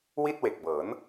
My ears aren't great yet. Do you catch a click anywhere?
no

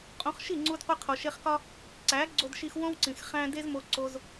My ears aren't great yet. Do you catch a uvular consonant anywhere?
yes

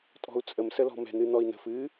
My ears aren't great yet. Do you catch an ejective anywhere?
yes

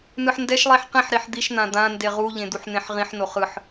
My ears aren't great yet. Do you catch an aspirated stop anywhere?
no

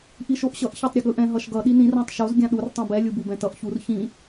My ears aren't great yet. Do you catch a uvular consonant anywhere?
no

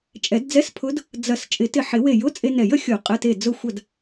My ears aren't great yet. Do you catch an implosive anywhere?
no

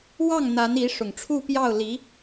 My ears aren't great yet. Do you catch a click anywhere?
no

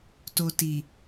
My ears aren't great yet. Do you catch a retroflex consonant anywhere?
no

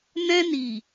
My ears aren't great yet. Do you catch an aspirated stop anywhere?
no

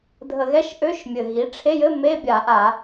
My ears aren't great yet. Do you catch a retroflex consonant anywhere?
yes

